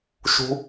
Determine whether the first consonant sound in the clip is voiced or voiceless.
voiceless